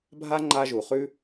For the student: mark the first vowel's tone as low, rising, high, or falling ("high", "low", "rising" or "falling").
high